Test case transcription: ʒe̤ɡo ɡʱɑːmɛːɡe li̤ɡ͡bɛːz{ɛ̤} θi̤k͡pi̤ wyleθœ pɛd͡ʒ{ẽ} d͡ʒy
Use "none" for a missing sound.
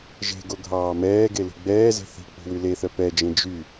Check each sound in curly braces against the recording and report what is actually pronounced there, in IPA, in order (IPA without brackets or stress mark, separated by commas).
e̤, ẽ